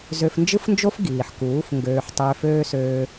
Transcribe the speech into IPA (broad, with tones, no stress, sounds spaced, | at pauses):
z ø˧ f n d͡ʒ ɯ˦ f n d͡ʒ o˦ f ɡ iː˨ ħ k uː˨˦ f ŋ ɡ øː˧ ħ tˤ øː˧ f øː˦ s øː˦